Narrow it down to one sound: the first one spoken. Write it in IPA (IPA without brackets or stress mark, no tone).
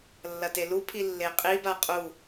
lː